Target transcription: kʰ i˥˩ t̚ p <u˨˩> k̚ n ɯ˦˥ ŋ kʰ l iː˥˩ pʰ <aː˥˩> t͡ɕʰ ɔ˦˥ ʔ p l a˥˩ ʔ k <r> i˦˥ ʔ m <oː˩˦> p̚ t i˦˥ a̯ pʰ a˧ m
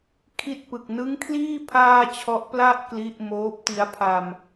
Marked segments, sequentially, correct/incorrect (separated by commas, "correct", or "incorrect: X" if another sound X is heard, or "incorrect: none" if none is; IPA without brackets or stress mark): incorrect: ɯ˨˩, correct, incorrect: l, incorrect: oː˦˥